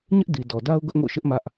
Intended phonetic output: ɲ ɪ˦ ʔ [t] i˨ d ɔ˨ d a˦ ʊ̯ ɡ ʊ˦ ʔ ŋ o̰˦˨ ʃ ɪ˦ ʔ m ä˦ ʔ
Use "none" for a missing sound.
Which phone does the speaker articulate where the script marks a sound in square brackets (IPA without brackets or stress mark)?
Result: d